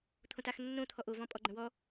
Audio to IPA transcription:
t̪ʰõtaxnːõ t̪ʰɔʔovɔ̃ pʼɔɡ͡ǃə̃wɔ

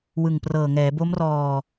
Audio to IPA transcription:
wɯ˨˩ŋprɤː˨˩ŋɛː˩˦ bo˦˥mrɔː˧

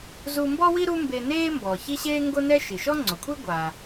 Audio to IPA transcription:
zu˧mbɔ˥wi˥ ɾu˥mbe˧neː˥ mbɔː˩çi˥ɕeː˥ ŋɡo˥nɛ˥ ʃi˩ʃɔ˥ŋ͡ǀo˩kʷʰe˥ ɡʷaː˩

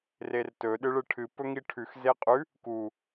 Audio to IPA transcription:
rertɵ ɗɨɭɨʈʰɨ pɵŋiʈʰʉx zeqʼʉ | ku

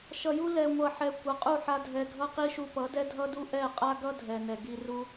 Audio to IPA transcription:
ʃʌ˨ju˦ lɛ˨ŋʷʌ˨ħɛ˨ kʷʌ˨qʼu˦˨ħa˧ dʱɛ˨ɡʱʌ˧qi˧ʃu˧ pʌ˨˦dɛ˦dʱʌ˦du˦ ʔɛ˦˨qʼa˦ɡʌ˦ dʱɛ˨nɛ˨ ɡi˧ru˦

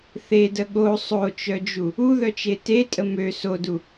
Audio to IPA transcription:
θedə ɠo sˤot͡ʃœd͡ʒu | uðœt͡ʃe tetʼə mø sodu

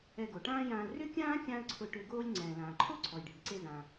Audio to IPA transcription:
ɛ˧ɡo˩ʈãː˥jãː˧l rʏ˥kʲãː˥ kʲã˥ə̯ǀʰʊ˧ʈʏ˧ ɡoː˥lʲ ŋ͡ǀɛ̃ː˩lãː˩ǃʰo˥ ǀʰɔ˩jɖʱi˩ǀe˧zã˩

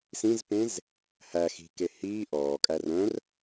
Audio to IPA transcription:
sĩzpẽz | hæ xi̤ke hiː ʔɔːkʼær œ̃r

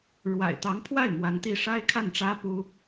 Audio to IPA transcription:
ɻwa̰˨˩ɪ̯t̪ɑ˧˥ŋpʰwa˥˩ɪ̯ mwa˧˥nt̪i˥˩ ʂa˥ɪ̯ kʰa˥˩nʈ͡ʂä˥pu˥

